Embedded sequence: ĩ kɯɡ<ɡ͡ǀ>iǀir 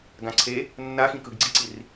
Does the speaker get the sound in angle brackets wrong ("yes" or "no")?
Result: no